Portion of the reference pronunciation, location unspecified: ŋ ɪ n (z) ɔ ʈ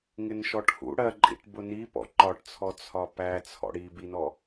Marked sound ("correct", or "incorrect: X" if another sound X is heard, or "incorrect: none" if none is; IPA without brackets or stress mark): incorrect: ʃ